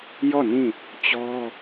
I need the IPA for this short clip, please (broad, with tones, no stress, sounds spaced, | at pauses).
j ɔ˦˨ n ĩ˦˨ | t͡ɕ ɔ˦